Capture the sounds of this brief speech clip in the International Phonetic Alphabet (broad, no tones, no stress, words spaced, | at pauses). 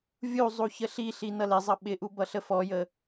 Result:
vʲuzˤu çəɬiɬi nʌlɪzˤʌ ɓɪʔu bʌɬəfɔjə